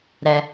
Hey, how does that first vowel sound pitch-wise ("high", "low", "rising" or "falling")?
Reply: high